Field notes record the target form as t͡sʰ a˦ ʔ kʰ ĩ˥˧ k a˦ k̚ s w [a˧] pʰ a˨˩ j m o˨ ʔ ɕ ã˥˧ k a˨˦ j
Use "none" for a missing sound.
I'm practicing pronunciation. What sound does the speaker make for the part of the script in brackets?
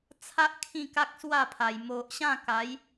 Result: a˥˧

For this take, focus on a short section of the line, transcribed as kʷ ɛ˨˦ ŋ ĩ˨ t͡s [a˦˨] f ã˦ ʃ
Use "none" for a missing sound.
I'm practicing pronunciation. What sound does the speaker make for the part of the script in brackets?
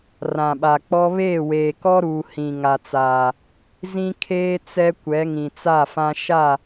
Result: a˦˨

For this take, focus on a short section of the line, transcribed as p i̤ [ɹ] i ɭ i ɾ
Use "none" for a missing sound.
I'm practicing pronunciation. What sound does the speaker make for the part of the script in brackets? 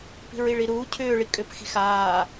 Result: ɹ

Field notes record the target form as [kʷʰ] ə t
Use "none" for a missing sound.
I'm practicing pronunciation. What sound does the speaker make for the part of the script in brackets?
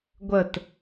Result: ɡʷ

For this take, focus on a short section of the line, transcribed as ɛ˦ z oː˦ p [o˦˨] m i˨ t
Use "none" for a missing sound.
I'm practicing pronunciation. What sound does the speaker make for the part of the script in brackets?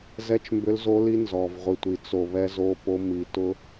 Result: o˦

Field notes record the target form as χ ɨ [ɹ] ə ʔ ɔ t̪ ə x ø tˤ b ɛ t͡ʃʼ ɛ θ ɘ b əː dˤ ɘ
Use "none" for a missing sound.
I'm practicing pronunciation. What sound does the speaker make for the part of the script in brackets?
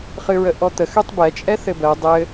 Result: ɹ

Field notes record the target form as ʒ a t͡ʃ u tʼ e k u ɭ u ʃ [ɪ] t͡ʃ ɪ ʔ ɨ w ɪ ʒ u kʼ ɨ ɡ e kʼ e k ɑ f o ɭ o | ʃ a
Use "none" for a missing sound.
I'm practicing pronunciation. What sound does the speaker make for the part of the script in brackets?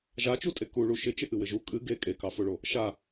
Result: ɪ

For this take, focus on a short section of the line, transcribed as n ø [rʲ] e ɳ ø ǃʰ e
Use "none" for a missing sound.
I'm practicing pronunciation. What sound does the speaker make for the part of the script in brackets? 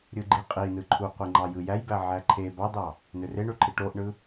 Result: r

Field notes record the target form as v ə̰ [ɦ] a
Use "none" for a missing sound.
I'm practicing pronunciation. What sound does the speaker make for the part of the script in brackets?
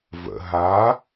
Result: ɦ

